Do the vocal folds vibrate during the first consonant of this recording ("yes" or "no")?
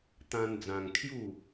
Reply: no